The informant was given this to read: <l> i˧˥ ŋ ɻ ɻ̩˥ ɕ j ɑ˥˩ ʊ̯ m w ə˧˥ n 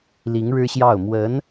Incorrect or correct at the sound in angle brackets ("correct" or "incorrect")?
correct